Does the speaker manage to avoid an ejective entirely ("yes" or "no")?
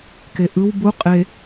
no